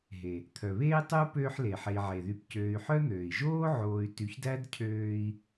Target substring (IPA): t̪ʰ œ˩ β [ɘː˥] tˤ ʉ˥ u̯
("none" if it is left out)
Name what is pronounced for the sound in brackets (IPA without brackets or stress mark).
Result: eː˥